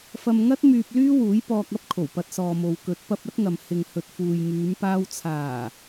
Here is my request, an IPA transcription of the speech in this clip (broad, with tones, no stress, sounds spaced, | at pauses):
f ɐ˧ m ŋ ɐ˥ t̚ m yː˧ p̚ l yː˥ w uː˨˥ j p ɔː˧ k̚ ɐ˥ p̚ kʰ o˨˩ w p ɐ˧ t̚ s ɔː˨ m o˨ w k ɵ˨˥ t̚ p ɐ˧ p̚ ɐ˥ t̚ ŋ ɐ˨ m h ɪ˨ ŋ h ɵ˨ t̚ f uː˨ j ŋ yː˨˧ m p aː˧ w t͡sʰ aː˨˩